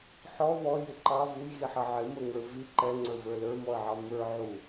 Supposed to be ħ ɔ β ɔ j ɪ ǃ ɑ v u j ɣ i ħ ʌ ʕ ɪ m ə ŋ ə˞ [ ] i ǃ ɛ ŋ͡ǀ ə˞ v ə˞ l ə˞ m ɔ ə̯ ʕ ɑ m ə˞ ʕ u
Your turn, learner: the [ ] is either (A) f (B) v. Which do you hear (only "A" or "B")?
B